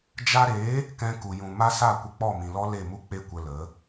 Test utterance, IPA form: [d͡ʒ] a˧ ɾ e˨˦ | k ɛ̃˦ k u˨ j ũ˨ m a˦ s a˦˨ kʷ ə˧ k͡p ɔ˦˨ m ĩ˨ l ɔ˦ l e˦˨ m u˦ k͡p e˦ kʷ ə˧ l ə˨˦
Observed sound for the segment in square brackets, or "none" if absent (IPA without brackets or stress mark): d͡ʒ